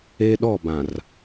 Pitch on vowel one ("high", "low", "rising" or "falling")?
high